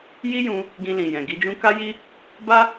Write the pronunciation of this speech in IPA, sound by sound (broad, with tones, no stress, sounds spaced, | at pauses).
j i˦ j ũ˧ | ɡ ĩ˧ l ĩ˨ j ɛ̃˨ ɡ i˧ d͡ʒ ũ˦ k a˦ j i˦ | b a˦